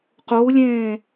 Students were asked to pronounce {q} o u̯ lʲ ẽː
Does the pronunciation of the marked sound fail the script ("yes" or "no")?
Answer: no